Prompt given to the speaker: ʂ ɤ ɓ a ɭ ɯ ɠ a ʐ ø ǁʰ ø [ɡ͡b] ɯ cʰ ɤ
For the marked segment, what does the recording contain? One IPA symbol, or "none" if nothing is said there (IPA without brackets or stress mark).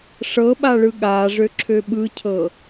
ɓ